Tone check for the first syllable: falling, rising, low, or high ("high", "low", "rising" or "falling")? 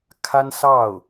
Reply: high